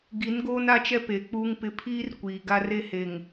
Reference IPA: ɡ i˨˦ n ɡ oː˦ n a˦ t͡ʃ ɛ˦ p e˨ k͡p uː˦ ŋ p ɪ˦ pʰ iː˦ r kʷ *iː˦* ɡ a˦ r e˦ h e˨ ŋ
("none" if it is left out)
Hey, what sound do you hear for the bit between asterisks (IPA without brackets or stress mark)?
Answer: iː˨